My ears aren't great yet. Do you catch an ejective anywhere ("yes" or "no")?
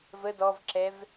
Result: no